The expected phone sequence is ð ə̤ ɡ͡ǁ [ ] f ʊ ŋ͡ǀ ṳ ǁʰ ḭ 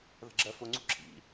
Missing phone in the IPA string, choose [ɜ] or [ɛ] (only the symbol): ɜ